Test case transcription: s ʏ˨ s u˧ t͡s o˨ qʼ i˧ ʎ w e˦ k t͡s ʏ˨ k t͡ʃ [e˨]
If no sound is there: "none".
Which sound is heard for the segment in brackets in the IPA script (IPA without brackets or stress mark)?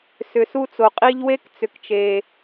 e˨